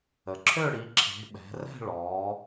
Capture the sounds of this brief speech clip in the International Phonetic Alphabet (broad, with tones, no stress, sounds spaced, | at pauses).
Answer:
ə˩˧ ǁʰ ø˥˧ ɽ i˩˧ ǁʰ e̤˩˧ ɓ ɛ̤˩˧ r ɛ̤˥˧ ɭ ɔː˩˧